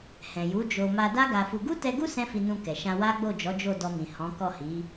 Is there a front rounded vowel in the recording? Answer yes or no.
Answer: no